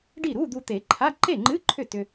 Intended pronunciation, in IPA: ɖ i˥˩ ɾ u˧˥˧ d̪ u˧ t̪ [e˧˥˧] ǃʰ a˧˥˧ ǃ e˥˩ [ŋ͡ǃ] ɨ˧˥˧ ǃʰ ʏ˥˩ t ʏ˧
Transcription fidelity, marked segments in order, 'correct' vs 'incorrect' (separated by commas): incorrect, correct